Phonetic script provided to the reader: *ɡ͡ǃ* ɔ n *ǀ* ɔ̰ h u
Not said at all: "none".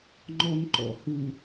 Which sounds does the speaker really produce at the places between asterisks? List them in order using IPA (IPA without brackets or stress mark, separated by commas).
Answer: ŋ͡ǃ, ǃ